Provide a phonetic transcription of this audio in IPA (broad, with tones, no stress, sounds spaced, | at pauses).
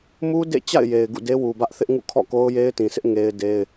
m u˦ d ḛ˦˨ t͡ɕ a̰˦˨ ɪ̯ j e˨ ɪ̯ ɡ ṵ˦˨ d e˦ w u˨ b ä˦ ʔ θ ɪ˦ ʔ ŋ ṵ˦˨ kʰ ɔ̰˦˨ k o˦ ʊ̯ j e˦ ɪ̯ t ĩ˨ s ɪ˦ ʔ ŋ e˦ ɪ̯ d e˦ ɪ̯